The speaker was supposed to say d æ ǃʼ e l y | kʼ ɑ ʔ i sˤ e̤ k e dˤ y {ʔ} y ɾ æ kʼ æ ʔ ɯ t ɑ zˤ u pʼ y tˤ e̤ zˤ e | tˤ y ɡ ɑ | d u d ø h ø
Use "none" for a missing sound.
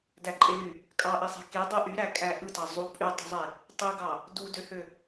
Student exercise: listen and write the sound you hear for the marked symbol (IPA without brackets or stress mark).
ʔ